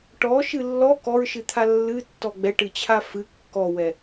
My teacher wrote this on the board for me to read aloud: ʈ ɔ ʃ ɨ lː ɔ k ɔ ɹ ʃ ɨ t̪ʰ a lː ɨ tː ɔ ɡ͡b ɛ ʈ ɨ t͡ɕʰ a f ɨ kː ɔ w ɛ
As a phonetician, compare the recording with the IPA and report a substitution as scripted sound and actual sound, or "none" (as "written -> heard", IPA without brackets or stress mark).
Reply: none